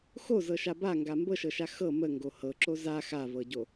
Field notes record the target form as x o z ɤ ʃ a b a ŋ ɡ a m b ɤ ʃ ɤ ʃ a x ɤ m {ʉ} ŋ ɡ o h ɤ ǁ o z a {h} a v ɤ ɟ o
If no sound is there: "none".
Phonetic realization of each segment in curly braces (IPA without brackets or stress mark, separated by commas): ə, x